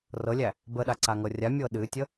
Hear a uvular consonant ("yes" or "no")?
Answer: no